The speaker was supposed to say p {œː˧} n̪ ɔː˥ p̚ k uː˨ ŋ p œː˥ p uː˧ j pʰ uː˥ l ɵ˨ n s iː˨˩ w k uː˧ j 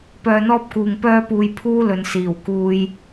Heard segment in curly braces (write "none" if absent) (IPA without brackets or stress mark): œː˧